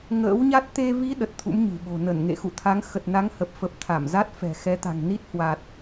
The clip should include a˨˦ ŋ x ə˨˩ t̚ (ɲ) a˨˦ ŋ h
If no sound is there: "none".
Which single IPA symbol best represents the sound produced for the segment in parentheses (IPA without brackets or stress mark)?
n